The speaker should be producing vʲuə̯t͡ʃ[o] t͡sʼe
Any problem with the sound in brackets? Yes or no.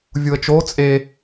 no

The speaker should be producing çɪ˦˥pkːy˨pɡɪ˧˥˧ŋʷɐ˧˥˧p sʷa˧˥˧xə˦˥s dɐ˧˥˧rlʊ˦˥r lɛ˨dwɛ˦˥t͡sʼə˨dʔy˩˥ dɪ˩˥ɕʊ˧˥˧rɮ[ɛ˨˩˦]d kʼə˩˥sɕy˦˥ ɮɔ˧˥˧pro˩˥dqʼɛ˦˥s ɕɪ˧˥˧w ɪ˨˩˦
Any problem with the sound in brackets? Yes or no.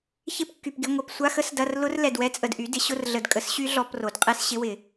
yes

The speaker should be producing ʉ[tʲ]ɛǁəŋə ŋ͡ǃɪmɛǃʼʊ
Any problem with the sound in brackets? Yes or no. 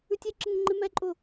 no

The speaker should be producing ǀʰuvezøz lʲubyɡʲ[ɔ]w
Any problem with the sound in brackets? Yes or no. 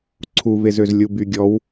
no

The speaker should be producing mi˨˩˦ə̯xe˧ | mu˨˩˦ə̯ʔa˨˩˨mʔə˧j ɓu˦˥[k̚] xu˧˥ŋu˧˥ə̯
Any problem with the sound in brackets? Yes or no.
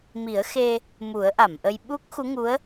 no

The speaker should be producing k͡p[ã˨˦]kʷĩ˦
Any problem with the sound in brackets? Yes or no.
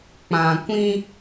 yes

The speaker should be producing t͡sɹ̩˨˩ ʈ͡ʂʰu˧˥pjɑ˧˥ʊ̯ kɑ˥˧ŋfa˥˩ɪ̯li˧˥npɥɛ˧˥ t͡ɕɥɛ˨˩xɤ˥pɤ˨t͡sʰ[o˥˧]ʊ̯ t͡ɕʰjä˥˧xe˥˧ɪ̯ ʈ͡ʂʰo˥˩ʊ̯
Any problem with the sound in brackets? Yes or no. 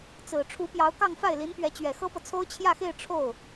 yes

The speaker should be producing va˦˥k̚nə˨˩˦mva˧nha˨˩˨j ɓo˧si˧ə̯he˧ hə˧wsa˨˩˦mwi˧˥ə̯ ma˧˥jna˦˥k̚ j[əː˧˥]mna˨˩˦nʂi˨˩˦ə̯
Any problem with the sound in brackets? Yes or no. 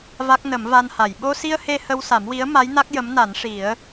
yes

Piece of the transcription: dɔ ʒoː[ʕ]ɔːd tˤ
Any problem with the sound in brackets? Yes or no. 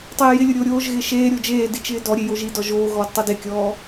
yes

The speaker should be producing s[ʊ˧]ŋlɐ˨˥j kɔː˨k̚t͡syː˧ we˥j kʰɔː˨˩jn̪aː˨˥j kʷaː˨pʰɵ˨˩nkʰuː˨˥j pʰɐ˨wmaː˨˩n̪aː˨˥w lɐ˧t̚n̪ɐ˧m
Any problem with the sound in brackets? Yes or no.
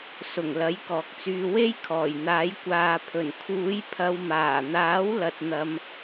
yes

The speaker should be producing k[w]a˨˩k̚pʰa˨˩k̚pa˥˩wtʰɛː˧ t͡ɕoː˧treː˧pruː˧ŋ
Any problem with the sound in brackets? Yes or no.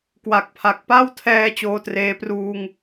no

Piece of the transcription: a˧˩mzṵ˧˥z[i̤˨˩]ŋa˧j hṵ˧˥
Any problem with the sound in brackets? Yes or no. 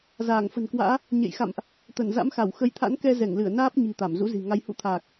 no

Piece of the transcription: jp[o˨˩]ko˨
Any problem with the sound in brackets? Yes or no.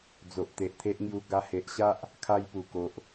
yes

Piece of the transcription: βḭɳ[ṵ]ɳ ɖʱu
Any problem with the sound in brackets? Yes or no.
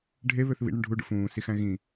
yes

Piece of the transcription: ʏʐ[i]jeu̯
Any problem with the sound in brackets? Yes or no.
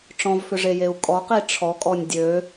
yes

